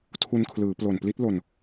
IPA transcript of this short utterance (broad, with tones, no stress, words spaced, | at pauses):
tʰu˧nkʰlɯː˩˦ plo˨˩npli˦˥t̚lo˧n